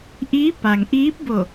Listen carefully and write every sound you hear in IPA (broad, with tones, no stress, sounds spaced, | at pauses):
ʔ iː˧˥ p a˩ ŋ ʔ iː˧˥ p̚ b o˧˩